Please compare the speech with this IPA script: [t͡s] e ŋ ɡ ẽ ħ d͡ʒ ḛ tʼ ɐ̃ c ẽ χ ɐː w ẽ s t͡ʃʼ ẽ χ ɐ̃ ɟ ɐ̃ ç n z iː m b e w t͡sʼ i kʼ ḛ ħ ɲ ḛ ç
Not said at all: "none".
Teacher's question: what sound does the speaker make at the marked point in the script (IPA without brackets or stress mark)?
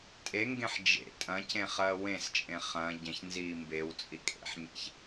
tʼ